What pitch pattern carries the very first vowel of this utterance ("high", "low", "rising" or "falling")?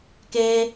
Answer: high